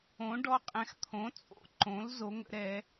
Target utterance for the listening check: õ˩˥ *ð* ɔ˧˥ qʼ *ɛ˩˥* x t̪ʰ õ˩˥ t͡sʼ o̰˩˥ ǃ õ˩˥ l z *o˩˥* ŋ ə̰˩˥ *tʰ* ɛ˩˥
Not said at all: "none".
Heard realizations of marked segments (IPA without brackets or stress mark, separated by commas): ɖ, ɛ̃˩˥, o˩˥, ɾ